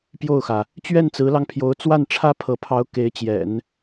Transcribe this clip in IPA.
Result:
p j o˥˩ ʊ̯ x ä˩ | t͡ɕ ɥ ɛ˥˩ n t͡s ɹ̩˧˥ l ɑ˧ ŋ pʰ j o˧˥ ʊ̯ t͡s w a˥˩ n ʈ͡ʂʰ ä˥ pʰ ɤ˧˥ pʰ ɑ˧˥ ʊ̯ k e˧˥ ɪ̯ t͡ɕ j ɛ̰˨˩˦ n

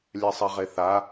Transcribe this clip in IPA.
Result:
lʲ ɛ sˤ ɛ ʁ e θ a

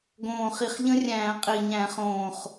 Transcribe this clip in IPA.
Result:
ɡ õː˨˩ χ i˨˩ χ ʎ ə̃˦˥ rʲ æ̃ː˧˩˧ qʼ i˨˩ ɲ æ̃˧˩˧ χ õː˨˩ χ

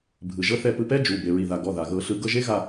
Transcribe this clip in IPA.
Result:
bʱ ɯ˩ ʒ ɤ˧ θ ɛ˧˩ p ɯ˧ p ɛ˦˥ d͡ʒ u˩˧˩ b e˩ ɹ i˩ ð a˩ ɡ ɔ˩˧˩ ð a˩ ɣ ɤ˨˩˦ ɬ ɯ˨˩˦ ɡ ɤ˧ ʒ e˦˥ ɣ a˧˩

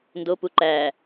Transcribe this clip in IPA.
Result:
n d o p u ǃ æ

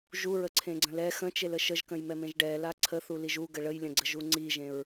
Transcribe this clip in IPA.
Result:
ʒ u ɹ ə ǀʰ ẽ ɡ͡ǀ ə̃ l ɛ x ə̃ t͡ʃ e l ə ʃ ə ʒ k ə̃ j m ɛ m ẽ ʒ ɖ ɛ l a ǀʰ ə θ u l i ʒ u ɡ ə ɭ ə j lʲ ə̃ ɡ͡ǀ ə ʒ u ŋ͡ǀ i ʒ ẽ ɹ

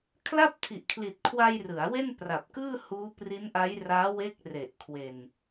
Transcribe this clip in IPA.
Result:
kʰ l a˥˩ p̚ tʰ i˨˩ ʔ kʰ l i˨˩ t̚ kʰ w a˧ j r ɯ˩˦ a̯ w e˥˩ n p r a˨˩ p̚ k ɯː˥˩ h uː˦˥ p r i˦˥ n ʔ a˦˥ j r aː˦˥ w e˦˥ k̚ r e˨˩ ʔ kʰ w e˨˩ n

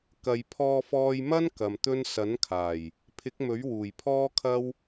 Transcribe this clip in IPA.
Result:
k ɐ˨ j pʰ ɔː˧ f ɔː˧ j m ɐ˥ n k ɐ˨ m t̪ ɵ˥ n s ɐ˨˥ n kʰ aː˨˩ j | pʰ ɪ˨˥ k̚ m ɵ˨˥ ɥ w uː˨˩ j pʰ ɔː˥ kʰ ɐ˥ w

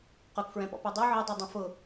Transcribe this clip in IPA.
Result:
q ʊ k f ɹ ɛ̃ p ɔ̰ p u dˤ u ʕ ɪ dˤ ɛ dˤ ɛ̃ f ʊ

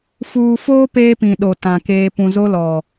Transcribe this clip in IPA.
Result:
f uː˨ f oː˦ p eː˦ p ĩ˨ ɗ o˨ t ã˨ k eː˦ p ũ˨ z o˦ l ɔ˨

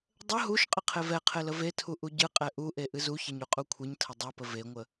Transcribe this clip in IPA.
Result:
dˤ ə ɦ u ʃ qʼ ə qʰ e v ɛ qʰ e l ə v e tʰ u ʔ u ɟ ɨ qʼ ɛ ʔ u ʔ e ʔ ɨ z u ç ɛ ɲ u qʼ u kʷʰ ɨ ɲ tʰ ə dˤ u p ə v e ŋʷ ə

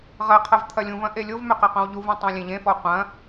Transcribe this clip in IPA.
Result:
ʁ ɐ qʰ ɐ v t̪ʰ ɐ lʲ ũ v ɐ̃ ʔ e lʲ o v m ʏ q ɐ q õ w ʎ u v ũ tˤ õ lʲ ẽ ʎ ẽ f ɔ qʷ ɐ̃

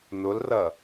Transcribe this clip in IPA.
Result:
n ʊ l r ɐ

